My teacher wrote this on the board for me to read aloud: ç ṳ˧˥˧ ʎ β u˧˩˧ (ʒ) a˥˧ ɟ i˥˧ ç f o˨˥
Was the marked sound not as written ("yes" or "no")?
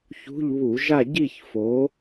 no